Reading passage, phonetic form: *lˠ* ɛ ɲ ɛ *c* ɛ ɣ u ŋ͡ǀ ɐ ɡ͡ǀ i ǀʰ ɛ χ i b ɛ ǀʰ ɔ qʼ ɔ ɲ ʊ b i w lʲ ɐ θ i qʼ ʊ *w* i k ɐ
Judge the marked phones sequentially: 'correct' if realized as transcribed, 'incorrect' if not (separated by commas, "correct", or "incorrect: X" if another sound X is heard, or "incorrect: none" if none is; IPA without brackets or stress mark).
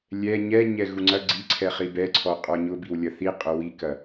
incorrect: lʲ, incorrect: ɲ, correct